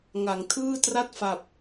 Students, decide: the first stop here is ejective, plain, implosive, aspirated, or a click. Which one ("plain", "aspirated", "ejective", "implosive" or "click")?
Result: aspirated